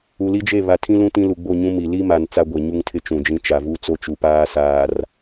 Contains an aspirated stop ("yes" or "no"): yes